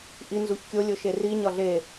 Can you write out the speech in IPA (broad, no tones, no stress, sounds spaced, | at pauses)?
ʔ i n z u ç kʲ o lʲ o ʃ e r i ɲ ɒ ɮ e